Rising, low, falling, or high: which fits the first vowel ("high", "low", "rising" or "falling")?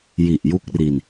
low